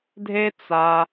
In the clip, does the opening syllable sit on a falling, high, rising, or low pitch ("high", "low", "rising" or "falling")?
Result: high